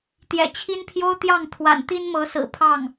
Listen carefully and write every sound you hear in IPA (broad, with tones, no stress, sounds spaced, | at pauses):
t̪ j ɛ̰˨˩ t͡ɕʰ i˥ n pʰ j o˥ ʊ̯ t̪ j ɑ˥˩ ŋ t̪ʰ w a̰˨˩ n t̪ i˥ n m ɤ˧˥ s ɹ̩˨˩ pʰ ɑ˥˩ ŋ